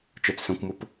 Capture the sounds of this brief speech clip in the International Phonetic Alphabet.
t͡ʃ œ t͡s s œ̃ kʷ m ʊ p

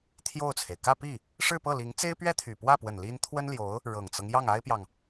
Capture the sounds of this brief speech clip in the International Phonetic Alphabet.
t̪ʰ j o˥˩ ʊ̯ t͡sʰ e˩ ɪ̯ k ä˥˧ p i˥˩ | ʂ ɻ̩˥˧ p ɤ˥˩ l i˧˥ ŋ t͡s e˥ ɪ̯ p ɥ ɛ˥ t̪ʰ y˨˩ p w ä˥˩ p w ə˨˩ n l i˥ n t̪ʰ w ə˥ n l j o˧˥ ʊ̯ | ɻ ɤ˨˩ ŋ t͡s ɤ˦ ŋ j ɑ˥˩ ŋ a˥ ɪ̯ p j ɑ˨ ŋ

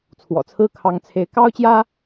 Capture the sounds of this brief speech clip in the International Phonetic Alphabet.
t͡sʰ w ɔ̰˨˩ t͡sʰ ɹ̩˥ kʰ ɑ˧˥ ŋ t͡sʰ e˧˥ ɪ̯ k ɑ˥ ʊ̯ t͡ɕ j ä˥

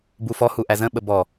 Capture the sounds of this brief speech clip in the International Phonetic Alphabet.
b u f ɔ h u ʔ æ z ə̃ ɓ ə b ɔ

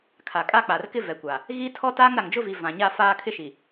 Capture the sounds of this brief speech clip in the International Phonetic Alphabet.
kʰ a˨ kʼ a˦ k͡p a˨ r k ɪ˦ v ɛ˨ kʷ a˨ | ɣ i˦ tʰ ɔ˦ t aː˦ ŋ ɾ a˨ ŋ d͡ʒ ʊ˦ v i˨ v ã˨ ɲ a˦ f aː˦ kʰ ɪ˦ ʃ i˨

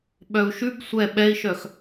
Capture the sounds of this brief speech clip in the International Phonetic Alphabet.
ɓ œ u̯ ʃ ʉ b sʷ ɛ ɓ ɛ i̯ ʃ œ x

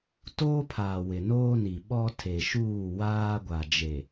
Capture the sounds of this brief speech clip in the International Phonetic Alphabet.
t oː˦ pʰ aː˨ w ɪ˨ n oː˦ n i˨ ɓ ɔ˦ tʰ e˨ ʃ uː˦˨ w aː˦ ɡʷ a˨ d͡ʒ e˨

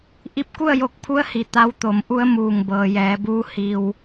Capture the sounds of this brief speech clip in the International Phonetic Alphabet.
ʔ i˧ p̚ k u˥˨ ə̯ j o˧ k̚ pʰ u˧˥ ə̯ h i˩ t̪ a˧˥ w t̪ o˩˧ m ʔ u˧˥ ə̯ m uː˧˩ ŋ b ɤː˩ j ɛː˩˧ b uː˧˥ h i˧ w

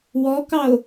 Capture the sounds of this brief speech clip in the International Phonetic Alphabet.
w ɔ k ɑ o̯

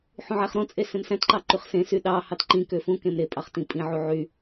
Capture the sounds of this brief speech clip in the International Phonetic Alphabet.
ħ ũ ʕ æ χ ɾ õ t͡sʼ e s ẽ m s æ̃ t ǃ ɑ ǃ y χ s ẽ s y ɗ ɑ h ɑ t ǃ ĩ k ø f ũ k ẽ m ɾ e pʼ ɑ χ t ĩ pʼ ĩ ʕ u ʕ y

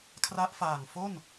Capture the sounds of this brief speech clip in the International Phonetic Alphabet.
kʰ r a˦˥ ʔ f aː˨˩ ŋ f o˥˩ n

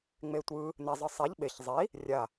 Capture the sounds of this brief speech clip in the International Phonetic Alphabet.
ŋ͡m e tʷ ɯ | n ɛ zˤ ɯ sˤ ɛ ʎ ɓ e ç zˤ i | rʲ a

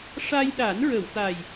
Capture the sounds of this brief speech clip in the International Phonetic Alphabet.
ʂ a˧ j ɗ a˨˩˦ n ɹ ə˨˩˨ w t̪ a˨˩ j

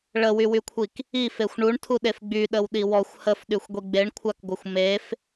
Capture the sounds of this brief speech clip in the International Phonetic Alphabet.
ɭ ə w y w y kʷʰ i k | i f e xʷ ɳ u ɳ tʰ u ɗ e f ɡ͡b y ɗ ə w ɗ i w ɔ xʷ h ə f ɗ y xʷ ɡʷ i ɡ͡b e ɳ kʷʰ a k ɡʷ ə xʷ m e f

